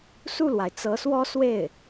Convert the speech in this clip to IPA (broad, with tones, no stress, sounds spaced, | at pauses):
s u˥˩ l w a˩ ɪ̯ t͡s ɤ˧˥ s w ɔ˥ s w e˥˩ ɪ̯